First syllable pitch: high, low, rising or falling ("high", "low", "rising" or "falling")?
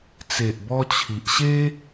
low